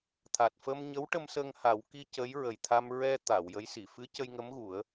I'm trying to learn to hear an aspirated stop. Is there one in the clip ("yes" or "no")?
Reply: yes